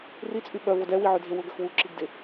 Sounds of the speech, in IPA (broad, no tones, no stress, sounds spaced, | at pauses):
r i t͡sʼ y ɓ œ v o d ɛ w i ʕ ø dʱ e w ʊ ɡ ɐ x w u ǁ i ɡ d ɪ